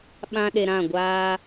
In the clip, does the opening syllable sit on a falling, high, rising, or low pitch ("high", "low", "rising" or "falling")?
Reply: high